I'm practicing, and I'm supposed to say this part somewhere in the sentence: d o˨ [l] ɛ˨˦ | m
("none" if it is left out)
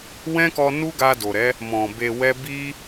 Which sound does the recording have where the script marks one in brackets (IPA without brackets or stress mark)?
ɾ